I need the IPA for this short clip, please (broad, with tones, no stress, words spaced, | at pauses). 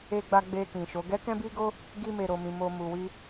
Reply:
e˧ɡ͡ba˧ ɡ͡be˧kĩ˨ʃo˨˦ ɡɛ˦kɛ̃˦bi˦ɡo˦ | ɡi˧me˨ɾo˨mĩ˨ mo˧ mu˨wi˧